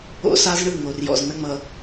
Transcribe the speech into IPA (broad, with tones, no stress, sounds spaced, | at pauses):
o̰˦ s a˦ z ɳ ɯ˦˨ ŋ o˨ r j ɔ̰˨ z n̪ ə˦ ŋ͡m ʌ˨